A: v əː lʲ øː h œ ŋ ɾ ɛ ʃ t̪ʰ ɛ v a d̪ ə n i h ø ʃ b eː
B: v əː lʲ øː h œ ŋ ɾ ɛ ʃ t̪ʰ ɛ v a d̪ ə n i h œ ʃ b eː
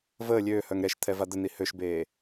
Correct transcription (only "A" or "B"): A